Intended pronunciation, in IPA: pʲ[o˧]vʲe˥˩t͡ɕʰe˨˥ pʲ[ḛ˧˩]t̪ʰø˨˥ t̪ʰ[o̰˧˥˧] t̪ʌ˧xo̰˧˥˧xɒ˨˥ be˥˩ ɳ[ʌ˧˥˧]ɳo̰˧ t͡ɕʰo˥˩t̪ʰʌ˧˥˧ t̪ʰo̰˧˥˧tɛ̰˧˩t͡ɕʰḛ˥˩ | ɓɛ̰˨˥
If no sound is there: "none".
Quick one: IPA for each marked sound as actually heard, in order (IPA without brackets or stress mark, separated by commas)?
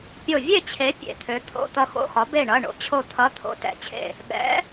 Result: o˧˩, ḛ˧˩, o̰˧˥˧, ʌ˧˥˧